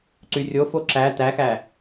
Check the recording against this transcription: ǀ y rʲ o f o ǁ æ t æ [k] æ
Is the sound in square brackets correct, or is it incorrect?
incorrect